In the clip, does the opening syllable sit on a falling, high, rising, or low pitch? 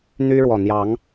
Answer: high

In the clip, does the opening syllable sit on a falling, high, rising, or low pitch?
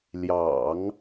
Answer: low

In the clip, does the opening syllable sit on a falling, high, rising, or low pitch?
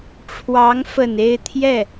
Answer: rising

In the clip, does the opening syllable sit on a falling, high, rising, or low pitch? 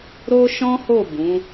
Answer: high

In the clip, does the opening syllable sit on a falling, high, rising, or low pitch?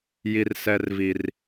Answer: high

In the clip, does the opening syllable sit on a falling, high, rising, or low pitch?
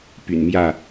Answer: low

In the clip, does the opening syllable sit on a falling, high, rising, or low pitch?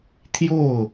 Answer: falling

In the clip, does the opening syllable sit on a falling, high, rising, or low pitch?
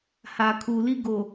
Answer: low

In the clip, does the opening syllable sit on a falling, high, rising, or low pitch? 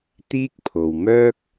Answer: high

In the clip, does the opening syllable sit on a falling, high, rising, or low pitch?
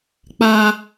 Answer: high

